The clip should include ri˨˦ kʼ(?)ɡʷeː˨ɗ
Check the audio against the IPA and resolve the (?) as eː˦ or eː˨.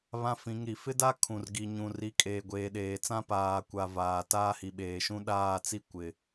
eː˨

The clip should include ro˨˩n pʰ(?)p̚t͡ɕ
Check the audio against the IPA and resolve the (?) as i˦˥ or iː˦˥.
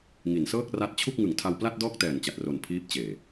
iː˦˥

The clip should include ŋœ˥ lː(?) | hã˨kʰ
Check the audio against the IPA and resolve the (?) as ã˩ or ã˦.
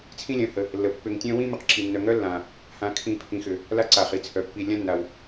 ã˩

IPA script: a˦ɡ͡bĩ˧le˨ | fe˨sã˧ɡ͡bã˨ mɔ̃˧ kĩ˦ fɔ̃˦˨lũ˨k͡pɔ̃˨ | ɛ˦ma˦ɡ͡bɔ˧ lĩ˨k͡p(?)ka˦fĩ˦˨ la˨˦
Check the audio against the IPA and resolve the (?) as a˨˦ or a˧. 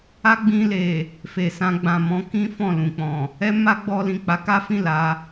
a˨˦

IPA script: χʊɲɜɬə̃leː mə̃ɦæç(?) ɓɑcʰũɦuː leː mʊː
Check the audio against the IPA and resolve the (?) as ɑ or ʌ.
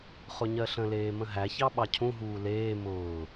ɑ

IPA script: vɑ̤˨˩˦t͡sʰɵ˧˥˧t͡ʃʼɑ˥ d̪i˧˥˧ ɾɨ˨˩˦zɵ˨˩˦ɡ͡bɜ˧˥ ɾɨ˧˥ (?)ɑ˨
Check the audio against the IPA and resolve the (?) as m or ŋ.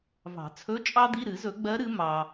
m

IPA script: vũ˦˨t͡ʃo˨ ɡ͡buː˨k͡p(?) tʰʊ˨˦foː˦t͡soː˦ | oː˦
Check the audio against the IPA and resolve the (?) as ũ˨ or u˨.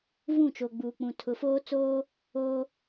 ũ˨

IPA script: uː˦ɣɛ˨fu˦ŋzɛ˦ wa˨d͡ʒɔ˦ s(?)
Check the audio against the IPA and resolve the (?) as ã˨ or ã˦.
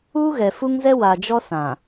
ã˨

